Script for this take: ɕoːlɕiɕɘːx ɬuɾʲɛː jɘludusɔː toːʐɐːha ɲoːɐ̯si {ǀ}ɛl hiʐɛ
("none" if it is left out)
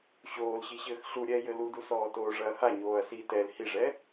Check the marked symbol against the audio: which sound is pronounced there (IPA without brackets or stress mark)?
t